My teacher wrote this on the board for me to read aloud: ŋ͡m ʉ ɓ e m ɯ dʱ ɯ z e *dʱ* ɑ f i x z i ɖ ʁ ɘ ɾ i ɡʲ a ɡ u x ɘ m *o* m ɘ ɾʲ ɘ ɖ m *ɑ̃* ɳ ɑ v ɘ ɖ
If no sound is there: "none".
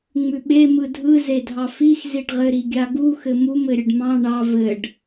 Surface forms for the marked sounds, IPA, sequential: dʱ, u, ɑ̃

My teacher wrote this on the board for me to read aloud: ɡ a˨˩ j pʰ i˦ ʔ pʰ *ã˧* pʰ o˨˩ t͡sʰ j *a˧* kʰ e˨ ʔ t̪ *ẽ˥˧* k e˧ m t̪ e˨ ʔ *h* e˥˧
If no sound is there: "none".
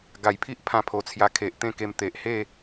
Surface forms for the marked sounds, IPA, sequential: ã˧, a˧, ẽ˥˧, h

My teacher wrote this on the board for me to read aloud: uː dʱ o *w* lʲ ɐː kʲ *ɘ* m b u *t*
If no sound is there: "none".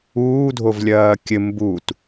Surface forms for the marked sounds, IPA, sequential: v, ɘ, t

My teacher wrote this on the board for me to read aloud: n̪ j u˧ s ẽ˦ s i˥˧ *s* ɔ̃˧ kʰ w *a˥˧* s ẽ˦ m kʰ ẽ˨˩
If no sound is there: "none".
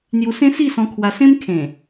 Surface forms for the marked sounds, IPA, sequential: s, a˧

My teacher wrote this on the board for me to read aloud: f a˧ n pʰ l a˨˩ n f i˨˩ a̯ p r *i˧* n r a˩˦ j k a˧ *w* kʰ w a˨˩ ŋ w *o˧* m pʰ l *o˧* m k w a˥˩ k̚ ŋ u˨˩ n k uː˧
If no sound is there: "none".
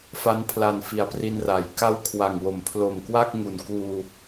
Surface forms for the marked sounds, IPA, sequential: i˧, w, o˨˩, o˨˩

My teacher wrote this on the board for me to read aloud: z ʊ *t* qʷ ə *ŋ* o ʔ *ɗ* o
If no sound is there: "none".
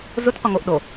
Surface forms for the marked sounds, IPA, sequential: t, ŋ, ɗ

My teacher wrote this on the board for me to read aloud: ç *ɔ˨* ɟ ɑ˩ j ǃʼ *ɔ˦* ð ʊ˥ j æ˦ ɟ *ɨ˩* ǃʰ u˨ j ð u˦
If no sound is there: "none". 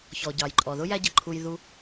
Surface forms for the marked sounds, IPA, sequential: ɔ˩, ɔ˩, ə˩

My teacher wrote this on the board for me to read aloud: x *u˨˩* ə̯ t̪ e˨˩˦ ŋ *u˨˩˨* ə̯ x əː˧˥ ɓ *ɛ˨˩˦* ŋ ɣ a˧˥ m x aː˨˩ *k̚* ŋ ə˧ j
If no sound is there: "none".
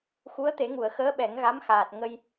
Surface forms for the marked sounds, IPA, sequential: u˧˥, u˨˩˨, ɛ˨˩˦, t̚

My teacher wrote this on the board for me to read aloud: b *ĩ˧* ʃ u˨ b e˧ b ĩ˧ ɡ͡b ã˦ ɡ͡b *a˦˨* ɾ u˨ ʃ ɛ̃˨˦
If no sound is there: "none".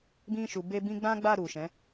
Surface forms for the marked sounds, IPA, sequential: ĩ˧, a˦˨

